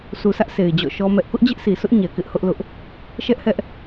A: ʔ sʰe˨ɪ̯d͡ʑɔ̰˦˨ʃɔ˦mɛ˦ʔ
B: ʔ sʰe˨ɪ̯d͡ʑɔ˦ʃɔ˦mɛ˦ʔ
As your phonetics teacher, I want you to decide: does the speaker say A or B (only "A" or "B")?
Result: A